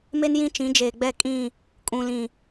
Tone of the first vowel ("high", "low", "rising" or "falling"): high